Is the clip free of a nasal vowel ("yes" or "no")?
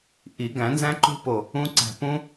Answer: no